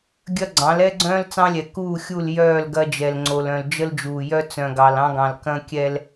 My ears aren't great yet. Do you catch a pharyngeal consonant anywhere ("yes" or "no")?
no